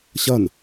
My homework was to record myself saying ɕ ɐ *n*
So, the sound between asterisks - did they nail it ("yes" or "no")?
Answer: yes